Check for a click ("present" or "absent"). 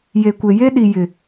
absent